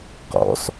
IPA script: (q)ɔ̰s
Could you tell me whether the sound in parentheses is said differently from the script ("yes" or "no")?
no